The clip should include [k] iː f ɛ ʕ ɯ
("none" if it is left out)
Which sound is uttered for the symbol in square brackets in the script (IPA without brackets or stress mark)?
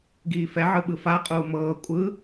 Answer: ɡ